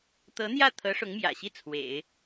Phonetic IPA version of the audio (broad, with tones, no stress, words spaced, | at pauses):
t̪ɤ˧˥n̪jä˥˩ t̪ʰɤ˧˥ ʂʊ˧˥ŋmjä̰˨˩ɕi˥˩ t͡sʰwḛ˨˩˦ɪ̯